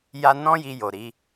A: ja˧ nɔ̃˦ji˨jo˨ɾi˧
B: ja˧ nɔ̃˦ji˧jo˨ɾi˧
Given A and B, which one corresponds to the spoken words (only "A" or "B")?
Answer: B